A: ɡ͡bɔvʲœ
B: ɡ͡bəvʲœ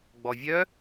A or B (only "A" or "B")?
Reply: A